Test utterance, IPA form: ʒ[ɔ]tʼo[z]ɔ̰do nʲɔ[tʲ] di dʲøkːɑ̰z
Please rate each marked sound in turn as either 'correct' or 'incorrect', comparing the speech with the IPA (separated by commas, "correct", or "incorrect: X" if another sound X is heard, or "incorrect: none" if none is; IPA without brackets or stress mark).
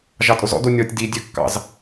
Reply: incorrect: ɑ, correct, correct